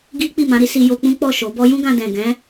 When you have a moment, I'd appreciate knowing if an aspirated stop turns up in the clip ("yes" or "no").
no